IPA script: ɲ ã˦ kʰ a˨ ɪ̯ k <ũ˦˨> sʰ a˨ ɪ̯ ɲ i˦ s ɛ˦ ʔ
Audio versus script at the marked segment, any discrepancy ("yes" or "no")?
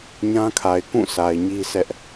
no